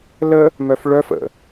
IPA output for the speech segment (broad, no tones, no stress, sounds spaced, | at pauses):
l ə | m œ f ɭ œ f ə̰